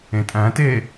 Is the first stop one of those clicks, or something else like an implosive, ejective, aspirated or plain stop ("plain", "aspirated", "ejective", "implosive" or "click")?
ejective